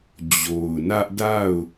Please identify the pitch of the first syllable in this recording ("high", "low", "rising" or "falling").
low